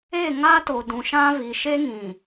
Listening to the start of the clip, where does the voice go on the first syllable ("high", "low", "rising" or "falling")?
falling